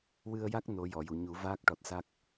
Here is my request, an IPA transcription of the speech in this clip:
wɨ˧ə̯ja˦˥k̚ no˧˥ jɔ˨˩˨ju˨˩˨ ɲu˨˩˦ vaː˦˥k̚ʈɔ˨˩t̚sa˦˥k̚

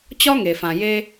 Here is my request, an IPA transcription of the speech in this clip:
t͡ɕɒ˦ŋe˨fã˨ je˧

